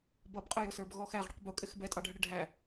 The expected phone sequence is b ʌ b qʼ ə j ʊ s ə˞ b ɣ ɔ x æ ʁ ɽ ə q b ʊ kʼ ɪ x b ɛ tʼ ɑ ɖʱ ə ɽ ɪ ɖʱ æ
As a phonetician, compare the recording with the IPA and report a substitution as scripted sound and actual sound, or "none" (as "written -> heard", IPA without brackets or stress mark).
none